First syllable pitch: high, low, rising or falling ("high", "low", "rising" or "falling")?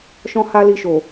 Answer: high